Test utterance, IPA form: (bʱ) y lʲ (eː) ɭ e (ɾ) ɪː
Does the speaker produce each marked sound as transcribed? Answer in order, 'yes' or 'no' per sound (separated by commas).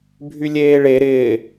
yes, yes, yes